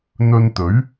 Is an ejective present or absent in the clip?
absent